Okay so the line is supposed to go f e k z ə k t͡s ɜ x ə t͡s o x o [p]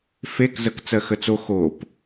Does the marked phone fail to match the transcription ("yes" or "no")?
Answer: no